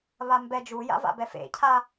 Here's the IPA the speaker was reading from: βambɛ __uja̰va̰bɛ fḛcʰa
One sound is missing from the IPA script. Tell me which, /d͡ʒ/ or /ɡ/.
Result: d͡ʒ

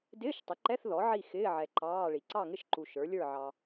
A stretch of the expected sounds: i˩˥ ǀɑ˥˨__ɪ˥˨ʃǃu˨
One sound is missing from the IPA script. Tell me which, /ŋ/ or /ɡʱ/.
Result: ŋ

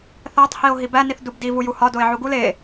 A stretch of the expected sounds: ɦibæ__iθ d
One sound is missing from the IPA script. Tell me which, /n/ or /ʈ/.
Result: n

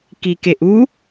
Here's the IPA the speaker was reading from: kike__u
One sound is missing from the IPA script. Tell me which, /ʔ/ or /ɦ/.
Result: ʔ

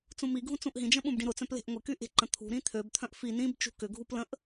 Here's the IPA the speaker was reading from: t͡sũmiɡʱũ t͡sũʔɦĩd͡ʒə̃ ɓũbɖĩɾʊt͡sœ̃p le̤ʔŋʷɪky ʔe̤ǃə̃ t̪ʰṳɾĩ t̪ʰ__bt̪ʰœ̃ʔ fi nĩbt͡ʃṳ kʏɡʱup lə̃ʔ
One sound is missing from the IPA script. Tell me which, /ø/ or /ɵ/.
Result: ø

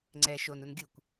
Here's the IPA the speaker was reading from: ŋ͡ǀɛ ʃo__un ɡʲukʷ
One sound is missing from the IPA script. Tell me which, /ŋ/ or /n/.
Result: n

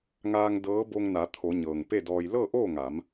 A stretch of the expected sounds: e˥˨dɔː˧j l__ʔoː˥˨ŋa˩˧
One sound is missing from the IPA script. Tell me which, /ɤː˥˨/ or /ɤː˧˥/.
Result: ɤː˥˨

